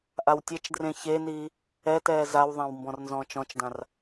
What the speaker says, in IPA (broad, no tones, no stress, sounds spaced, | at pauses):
ʔ a w tʲ e t͡ʃ d r ẽ ç e n iː | ɛ t ɛː z a w ðˤ ã w m b ɔ̃ r n z ɔ̃ː t͡ʃ ɔ̃ t͡ʃ d ã r